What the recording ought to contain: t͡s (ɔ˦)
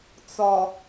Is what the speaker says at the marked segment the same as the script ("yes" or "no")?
no